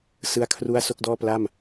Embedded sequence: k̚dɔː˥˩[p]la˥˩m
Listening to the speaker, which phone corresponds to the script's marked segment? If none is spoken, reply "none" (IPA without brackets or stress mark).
p